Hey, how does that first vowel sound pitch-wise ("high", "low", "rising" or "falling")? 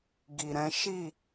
low